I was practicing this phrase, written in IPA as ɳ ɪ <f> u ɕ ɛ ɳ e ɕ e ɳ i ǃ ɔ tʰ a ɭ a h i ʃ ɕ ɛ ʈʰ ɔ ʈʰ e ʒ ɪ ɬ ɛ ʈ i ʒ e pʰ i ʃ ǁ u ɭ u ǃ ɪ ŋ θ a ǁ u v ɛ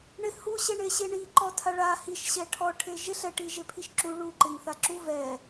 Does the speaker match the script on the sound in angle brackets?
no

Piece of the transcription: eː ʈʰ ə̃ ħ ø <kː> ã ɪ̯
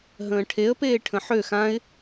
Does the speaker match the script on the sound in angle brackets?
no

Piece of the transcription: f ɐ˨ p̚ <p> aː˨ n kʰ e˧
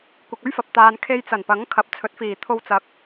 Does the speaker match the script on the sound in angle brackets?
no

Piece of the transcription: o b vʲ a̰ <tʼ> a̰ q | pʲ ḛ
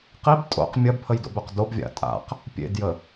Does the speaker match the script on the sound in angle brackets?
yes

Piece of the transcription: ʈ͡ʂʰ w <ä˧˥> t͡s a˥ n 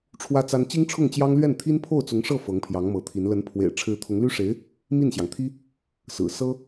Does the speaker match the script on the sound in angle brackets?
no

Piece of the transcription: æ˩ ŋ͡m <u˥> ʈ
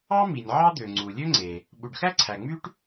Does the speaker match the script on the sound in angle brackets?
no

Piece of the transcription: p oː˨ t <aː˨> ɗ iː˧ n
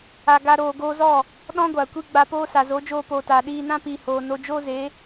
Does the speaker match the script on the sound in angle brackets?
yes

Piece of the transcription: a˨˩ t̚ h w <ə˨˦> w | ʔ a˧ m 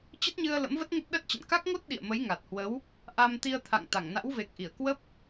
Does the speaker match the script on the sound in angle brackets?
yes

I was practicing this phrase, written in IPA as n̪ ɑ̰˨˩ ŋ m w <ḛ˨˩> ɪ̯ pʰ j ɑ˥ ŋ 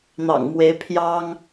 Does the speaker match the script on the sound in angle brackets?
no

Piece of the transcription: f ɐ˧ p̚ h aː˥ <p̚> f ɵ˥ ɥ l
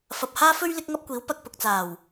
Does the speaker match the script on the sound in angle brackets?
no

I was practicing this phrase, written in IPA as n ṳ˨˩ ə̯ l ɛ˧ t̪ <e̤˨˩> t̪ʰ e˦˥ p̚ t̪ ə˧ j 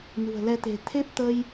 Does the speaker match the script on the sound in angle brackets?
yes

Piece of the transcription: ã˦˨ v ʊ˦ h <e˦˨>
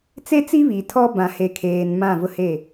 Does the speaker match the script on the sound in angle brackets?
yes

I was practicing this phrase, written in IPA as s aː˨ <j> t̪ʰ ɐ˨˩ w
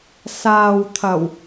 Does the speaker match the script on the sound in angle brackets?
no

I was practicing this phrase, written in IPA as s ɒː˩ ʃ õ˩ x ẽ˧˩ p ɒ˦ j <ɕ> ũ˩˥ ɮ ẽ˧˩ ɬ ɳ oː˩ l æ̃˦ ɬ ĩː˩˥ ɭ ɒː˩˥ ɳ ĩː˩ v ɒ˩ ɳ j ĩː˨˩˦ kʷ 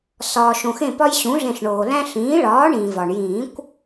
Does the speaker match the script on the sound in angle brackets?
yes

